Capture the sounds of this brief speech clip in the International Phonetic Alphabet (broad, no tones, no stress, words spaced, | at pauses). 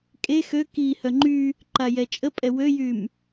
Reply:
kʼe xø ki hœŋ͡ǃy | ǃajɛt͡ʃʼəpʼɛ wøjym